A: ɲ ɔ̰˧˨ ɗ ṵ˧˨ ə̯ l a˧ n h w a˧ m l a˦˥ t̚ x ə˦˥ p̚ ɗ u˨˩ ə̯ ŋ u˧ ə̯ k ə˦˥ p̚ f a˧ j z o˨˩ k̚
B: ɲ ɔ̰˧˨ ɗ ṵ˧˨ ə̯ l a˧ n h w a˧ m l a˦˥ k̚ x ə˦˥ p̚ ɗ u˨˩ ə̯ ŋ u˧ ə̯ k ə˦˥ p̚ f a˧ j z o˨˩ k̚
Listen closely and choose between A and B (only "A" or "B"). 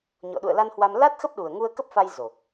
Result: A